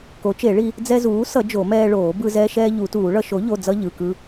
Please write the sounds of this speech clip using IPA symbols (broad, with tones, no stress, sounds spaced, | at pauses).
k o˩˥ t͡ʃ e˨˩˦ ɭ i˧ | d͡z ɛ˧ z uː˩˥ s ʌ˨˩˦ d͡ʒ o˨˩˦ m ɛː˧ ɭ oː˨˩˦ b ɯ˧ z ɛː˧ ʃ ɛː˧ ʎ u˨˩˦ t uː˨˩˦ ɭ ʌ˧ ʃ o˩˥ ʎ o˩˧˩ d͡z ʌ˧ ʎ ɯ˩˧˩ k ɯ˧